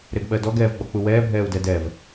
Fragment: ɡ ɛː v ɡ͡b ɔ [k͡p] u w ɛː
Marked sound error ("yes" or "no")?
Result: no